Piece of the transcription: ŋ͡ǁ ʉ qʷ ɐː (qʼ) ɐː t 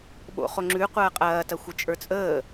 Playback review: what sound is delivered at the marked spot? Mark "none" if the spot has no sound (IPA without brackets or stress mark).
qʼ